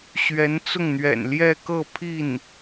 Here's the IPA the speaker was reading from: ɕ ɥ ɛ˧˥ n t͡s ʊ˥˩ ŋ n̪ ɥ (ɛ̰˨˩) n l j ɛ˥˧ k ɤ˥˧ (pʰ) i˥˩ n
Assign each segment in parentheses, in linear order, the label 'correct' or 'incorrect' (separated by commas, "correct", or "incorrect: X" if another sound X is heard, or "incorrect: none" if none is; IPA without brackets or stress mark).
correct, correct